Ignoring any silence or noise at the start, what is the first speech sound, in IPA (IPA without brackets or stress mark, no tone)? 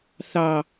θ